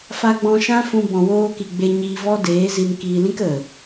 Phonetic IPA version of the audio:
f a˧ ɡ͡b ɔ̃˧ ʃ ã˦ f ũ˧ b ɔ̃˨ w oː˧ k i˨ ɡ͡b e˧ ɲ iː˧ v ɔ˦ d eː˨˦ z i˧ n k iː˧ l ĩ˦ k ə˨

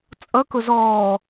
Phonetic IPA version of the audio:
t͡sʼ ʌ k ʊ z ɔː

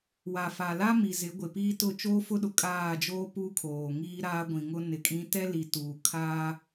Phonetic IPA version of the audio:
w a˨ f a˨ l a˦ m i˨ z ɪ˨˦ ɡʷ ɪ˨ p iː˦ t ʊ˦˨ t͡ʃ oː˦ f ʊ˦ ɗ ʊ˨ kʼ aː˦˨ d͡ʒ oː˦ p u˦ kʰ oː˨ ŋ iː˦ ɾ aː˦ ɡʷ ĩ˨ ŋ ʊ˦ n ɪ˨ kʼ ĩ˦ t ɛ˦ l i˨ t uː˨ kʰ aː˦

